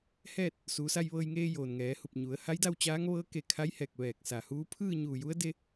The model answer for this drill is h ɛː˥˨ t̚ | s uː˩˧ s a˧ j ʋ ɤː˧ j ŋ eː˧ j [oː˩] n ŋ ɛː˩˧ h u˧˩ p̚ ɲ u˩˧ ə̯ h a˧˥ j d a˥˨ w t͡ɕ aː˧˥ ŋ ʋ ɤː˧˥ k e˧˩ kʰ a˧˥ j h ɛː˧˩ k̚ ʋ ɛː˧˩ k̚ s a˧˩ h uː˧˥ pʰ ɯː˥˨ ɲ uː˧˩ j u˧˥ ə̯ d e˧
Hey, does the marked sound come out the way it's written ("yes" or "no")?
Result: yes